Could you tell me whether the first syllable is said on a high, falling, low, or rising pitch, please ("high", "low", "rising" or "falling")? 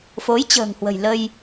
rising